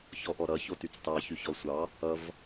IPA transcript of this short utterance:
ç ɔ ʔ ɔ ɾ ʌ ç o t y t͡s t ɑ ç y ç ɔ sʷ ɑ | ʌ v

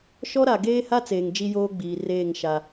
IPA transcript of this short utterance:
ʃ ɔ˦ ɾ a˨ ɡ eː˦ h a˦ t͡s eː˨ ŋ d͡ʒ i˦ j oː˦ ɡ͡b iː˨ r eː˦˨ ŋ ʃ a˦

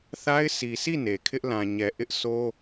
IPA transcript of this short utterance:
θ a˦ ɪ̯ s i˨ s i˦˨ n e˨ kʰ ɪ˦ ʔ l ã˨ ɲ ɛ˨ ʔ ɪ˦ ʔ sʰ o˦

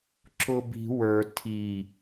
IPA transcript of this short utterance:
ǁ ʊ b i̤ w ə˞ tʰ i

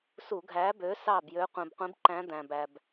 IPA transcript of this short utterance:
s u˧˩˧ ɡʱ æ˨˥ b ø˨˥ s ɑ˥˩ b j ø˨˥ qʷ ĩ˩ b qʷ ĩ˨˥ b ǃ æ̃˨˥ d̪ æ̃˩ b æ˩ b

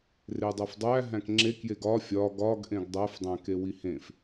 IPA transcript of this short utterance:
r e dˤ æ f dˤ æ ɦ æ̃ k ŋ͡ǁ e k j e ɡ ɒ fʲ ɒ ɡ ɒ ɡ ʔ ẽ ɡ dˤ æ f dˤ æ̃ k e w i h ẽ f

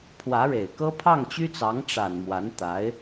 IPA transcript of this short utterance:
pʰ w ä˧˥ ɻ e˨˩ ɪ̯ k ɤ˥ pʰ ɑ˥˩ ŋ t͡ɕ y˥ t͡s ɑ˧˥ ŋ ʈ͡ʂ a˨˩ n m w a˧˥ n t̪ a˧˥ ɪ̯

